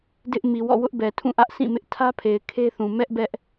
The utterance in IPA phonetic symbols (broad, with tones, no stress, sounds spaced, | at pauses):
d ɪ˦ ʔ m i˨ w ɔ̰˦˨ w ʊ˦ ʔ b ɛ˨ tʰ ũ˦˨ ʔ ä˦ ʔ sʰ ĩ˦˨ m ɪ˦ ʔ tʰ ä˦ pʰ e˨ ɪ̯ kʰ e˦ θ ũ˨ m ɛ˦ ʔ b ɛ˦ ʔ